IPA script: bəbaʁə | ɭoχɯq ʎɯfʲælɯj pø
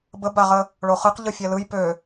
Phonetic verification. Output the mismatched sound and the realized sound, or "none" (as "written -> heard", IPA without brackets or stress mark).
none